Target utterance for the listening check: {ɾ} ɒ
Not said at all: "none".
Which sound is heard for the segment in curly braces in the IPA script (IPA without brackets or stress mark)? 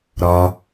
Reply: ɾ